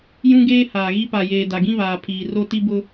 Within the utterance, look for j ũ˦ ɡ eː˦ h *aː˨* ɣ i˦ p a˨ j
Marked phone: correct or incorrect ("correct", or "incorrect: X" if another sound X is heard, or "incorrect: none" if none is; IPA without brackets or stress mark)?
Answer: correct